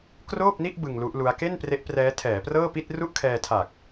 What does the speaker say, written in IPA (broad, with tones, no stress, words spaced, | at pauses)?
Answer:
kroː˥˩p̚ni˥˩ʔ bɯ˧ŋlu˦˥ʔlu˦˥a̯ ke˥˩npre˦˥ʔ prɛː˦˥tʰɛː˩˦prɤː˥˩ pi˥˩t̚ru˥˩ʔkʰɛː˧tʰa˨˩k̚